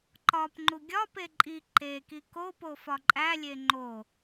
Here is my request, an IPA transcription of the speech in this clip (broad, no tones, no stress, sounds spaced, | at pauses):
ǃ ɒ p ŋ͡ǃ u ɡʲ ɒ p e ǃʼ i ǃ e k i k o p o f ɒ ǃʼ æ lʲ e ŋ͡ǃ o